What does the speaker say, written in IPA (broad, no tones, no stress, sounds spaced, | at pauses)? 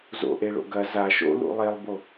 z o̰ ʔ e ɭ o̰ ɡ ɐ z a ʃ o̰ l ṵ lˠ e lˠ b o